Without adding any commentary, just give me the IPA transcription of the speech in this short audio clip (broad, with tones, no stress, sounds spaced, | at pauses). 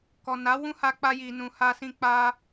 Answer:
k ɔ˨ n a˨˦ w ũ˦ h a˧ k͡p a˧ j i˨ n ũ˨ h a˧ s ĩ˧ k͡p a˧